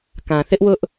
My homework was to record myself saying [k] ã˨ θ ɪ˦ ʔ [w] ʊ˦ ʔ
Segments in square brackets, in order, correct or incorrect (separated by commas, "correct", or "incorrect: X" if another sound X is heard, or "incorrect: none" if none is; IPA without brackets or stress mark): correct, correct